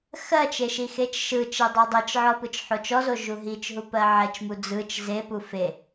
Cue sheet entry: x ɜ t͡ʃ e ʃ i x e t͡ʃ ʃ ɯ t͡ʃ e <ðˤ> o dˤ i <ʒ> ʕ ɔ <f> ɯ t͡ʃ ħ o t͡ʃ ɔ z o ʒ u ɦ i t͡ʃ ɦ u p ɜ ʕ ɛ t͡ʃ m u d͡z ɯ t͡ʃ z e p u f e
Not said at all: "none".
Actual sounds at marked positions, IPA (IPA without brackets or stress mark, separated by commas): dˤ, t͡ʃ, p